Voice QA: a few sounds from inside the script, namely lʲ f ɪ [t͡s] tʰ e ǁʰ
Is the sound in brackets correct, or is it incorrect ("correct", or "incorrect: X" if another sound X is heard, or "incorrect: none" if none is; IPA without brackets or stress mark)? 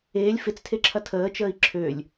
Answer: correct